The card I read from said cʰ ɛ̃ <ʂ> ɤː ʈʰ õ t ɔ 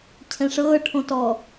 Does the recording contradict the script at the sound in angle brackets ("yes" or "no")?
no